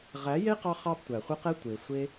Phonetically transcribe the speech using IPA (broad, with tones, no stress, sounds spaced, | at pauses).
ʁ æ˨˦ j e˦ q ɑ˧ χ ɑ˦ b tʷ æ˨ χʷ ə˦ q ɛ˦ tʷ e˨ sʷ e˦